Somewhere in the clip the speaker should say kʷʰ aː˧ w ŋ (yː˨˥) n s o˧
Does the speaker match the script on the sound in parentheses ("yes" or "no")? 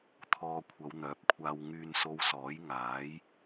no